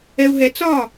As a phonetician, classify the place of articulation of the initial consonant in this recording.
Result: glottal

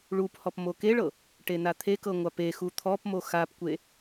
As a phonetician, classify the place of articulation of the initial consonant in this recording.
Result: retroflex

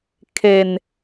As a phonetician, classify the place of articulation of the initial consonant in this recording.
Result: velar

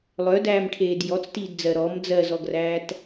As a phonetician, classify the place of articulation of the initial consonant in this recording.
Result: alveolar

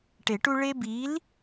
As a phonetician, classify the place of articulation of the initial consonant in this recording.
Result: retroflex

